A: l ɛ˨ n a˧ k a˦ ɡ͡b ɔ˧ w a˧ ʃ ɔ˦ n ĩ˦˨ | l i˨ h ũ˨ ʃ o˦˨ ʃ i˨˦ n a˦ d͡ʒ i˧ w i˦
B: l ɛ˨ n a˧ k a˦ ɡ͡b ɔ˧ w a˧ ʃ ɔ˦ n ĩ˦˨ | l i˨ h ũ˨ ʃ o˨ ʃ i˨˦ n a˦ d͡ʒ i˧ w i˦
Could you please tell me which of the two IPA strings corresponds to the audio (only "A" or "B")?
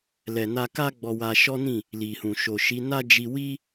B